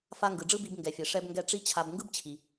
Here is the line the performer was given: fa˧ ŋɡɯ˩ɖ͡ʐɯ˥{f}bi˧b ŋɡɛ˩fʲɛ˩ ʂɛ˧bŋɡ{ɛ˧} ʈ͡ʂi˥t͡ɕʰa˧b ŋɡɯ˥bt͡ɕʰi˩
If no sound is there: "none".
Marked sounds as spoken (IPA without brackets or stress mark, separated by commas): none, ɛ˧